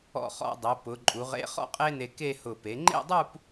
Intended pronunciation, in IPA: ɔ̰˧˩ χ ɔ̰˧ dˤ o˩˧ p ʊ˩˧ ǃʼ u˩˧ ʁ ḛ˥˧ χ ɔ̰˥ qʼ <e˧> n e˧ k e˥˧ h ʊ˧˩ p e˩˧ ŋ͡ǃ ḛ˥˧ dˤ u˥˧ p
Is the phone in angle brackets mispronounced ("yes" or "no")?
yes